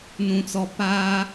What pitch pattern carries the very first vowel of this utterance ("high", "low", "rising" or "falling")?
low